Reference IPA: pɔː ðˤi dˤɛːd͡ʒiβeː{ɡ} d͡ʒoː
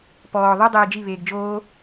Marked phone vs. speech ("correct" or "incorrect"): correct